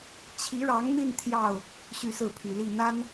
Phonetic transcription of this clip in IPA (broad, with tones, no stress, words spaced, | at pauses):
t͡ɕʰi˧˥ɻɑ˧˥ŋn̪i˥˧n t̪ʰjɑ˥˩ʊ̯ | ɕy˥˧sɹ̩˥˩pʰy˨˩li˥˩ n̪a˥n